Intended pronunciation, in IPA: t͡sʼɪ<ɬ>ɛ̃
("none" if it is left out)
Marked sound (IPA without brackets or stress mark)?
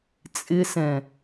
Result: s